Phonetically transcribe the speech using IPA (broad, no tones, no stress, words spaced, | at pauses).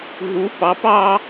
ɦu pɑp ɑ